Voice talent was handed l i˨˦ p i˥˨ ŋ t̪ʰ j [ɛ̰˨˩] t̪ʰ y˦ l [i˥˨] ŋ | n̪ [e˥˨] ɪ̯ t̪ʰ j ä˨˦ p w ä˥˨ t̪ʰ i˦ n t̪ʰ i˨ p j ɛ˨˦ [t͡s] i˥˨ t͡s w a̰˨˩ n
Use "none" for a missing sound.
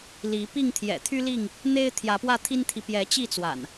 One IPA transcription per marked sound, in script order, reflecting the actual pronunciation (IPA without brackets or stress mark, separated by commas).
ɛ̰˨˩, i˥˨, e˦, t͡ɕ